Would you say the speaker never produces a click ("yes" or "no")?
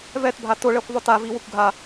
yes